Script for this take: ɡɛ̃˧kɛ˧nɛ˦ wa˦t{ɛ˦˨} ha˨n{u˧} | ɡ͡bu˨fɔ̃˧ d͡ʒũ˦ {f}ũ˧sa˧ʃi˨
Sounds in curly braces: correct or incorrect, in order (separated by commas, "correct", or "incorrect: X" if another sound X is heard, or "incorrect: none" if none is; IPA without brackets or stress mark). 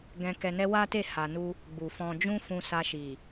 incorrect: e˦˨, correct, correct